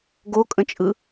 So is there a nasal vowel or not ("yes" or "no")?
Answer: yes